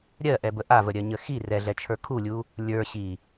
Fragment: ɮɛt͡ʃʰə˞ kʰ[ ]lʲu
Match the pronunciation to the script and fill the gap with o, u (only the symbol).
u